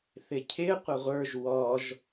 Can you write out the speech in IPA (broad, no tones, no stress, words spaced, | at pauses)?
θɪcʰɪ qʷəʁʷə˞ʒ wɔʒ